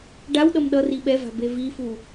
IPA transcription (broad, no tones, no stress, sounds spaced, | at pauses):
ɖ a w ɗ ʌ m ɗ ʌ r i ɓ ɛ v a̤ b e v i f u